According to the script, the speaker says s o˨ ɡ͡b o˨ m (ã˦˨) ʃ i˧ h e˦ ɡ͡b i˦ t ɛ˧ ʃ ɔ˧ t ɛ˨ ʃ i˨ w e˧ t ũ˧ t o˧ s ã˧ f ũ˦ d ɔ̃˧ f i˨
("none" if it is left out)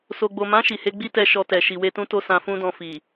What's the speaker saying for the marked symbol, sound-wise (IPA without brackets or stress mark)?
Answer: ã˨˦